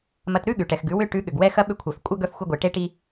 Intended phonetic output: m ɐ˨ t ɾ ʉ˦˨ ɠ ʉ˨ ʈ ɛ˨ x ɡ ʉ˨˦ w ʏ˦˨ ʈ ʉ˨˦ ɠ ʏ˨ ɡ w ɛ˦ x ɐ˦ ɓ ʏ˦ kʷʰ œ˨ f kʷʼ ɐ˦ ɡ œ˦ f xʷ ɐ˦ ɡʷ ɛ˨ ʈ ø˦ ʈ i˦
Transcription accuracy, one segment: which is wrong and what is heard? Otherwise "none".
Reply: ø˦ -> e˦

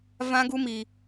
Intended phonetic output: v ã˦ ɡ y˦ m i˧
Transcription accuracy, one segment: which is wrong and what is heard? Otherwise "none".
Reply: y˦ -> u˦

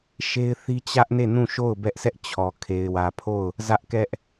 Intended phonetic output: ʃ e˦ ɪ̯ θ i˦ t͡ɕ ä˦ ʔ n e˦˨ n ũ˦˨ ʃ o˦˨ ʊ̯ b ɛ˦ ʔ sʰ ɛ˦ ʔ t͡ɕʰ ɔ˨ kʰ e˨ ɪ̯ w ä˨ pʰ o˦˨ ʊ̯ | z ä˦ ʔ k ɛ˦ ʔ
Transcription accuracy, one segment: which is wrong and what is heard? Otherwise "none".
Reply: none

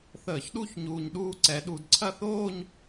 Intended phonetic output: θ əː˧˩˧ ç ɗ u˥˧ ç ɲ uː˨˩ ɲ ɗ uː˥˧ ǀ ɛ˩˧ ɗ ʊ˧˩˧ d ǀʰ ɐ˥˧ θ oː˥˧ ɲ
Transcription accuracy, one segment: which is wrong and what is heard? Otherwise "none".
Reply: ʊ˧˩˧ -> u˧˩˧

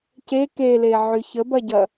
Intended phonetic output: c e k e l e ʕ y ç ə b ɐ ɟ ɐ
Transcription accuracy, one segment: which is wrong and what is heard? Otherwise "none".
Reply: none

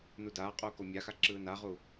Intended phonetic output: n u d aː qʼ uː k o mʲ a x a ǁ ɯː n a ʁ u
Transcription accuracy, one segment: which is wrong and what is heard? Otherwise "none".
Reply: none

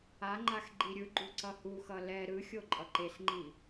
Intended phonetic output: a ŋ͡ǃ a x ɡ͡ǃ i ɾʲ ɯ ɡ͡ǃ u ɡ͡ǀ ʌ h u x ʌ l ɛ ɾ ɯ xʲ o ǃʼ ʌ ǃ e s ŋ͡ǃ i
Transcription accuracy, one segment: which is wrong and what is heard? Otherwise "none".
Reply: ɡ͡ǀ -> ǀ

